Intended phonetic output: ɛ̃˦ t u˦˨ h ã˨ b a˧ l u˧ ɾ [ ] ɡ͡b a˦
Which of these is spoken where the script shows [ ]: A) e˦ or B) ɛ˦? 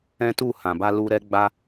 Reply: B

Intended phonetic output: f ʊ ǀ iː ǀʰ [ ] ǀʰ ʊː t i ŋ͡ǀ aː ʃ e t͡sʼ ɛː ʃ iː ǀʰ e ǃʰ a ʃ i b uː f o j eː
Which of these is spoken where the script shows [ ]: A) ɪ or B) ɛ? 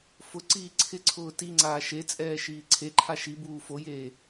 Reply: A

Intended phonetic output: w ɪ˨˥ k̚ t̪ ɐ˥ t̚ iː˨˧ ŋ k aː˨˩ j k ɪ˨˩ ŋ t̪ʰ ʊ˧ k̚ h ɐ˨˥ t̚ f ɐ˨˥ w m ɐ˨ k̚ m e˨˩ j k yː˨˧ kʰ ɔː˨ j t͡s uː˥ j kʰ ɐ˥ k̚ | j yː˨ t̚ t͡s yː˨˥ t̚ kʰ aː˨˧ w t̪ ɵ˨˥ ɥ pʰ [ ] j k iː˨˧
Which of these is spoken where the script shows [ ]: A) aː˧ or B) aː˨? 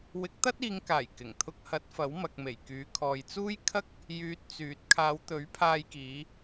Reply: A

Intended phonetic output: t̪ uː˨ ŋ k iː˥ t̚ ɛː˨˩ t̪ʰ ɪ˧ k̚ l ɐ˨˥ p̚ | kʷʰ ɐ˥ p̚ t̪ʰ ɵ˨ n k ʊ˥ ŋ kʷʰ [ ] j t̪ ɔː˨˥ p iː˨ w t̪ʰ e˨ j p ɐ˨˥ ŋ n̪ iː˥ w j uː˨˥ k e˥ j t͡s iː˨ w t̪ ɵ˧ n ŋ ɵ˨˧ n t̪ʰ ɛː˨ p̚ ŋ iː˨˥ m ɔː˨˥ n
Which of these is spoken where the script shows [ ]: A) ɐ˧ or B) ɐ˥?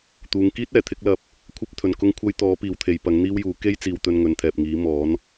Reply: B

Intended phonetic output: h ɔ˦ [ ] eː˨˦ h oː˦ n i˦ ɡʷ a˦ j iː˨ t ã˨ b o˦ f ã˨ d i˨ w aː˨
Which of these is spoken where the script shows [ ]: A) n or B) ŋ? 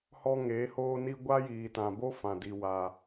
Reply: B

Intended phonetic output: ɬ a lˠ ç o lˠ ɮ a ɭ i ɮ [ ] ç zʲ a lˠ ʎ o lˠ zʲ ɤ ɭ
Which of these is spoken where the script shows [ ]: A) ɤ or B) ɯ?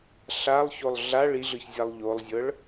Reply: B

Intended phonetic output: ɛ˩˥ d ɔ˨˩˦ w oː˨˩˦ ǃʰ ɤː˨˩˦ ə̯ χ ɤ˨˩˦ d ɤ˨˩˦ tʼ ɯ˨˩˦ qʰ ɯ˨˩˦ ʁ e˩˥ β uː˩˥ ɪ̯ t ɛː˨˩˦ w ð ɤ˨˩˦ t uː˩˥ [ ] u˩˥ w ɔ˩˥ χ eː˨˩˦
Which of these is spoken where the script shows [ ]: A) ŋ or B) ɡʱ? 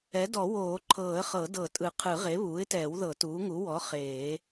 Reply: A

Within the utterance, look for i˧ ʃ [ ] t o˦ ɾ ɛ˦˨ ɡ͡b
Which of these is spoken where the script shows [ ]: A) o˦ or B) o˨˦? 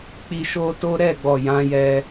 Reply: A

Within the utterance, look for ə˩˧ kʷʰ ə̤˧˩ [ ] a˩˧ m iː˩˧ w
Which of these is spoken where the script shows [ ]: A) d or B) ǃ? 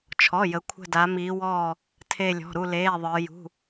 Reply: A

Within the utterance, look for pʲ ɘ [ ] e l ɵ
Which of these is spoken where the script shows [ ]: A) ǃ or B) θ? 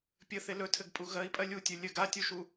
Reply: B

